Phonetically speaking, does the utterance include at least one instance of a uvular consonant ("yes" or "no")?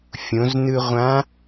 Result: yes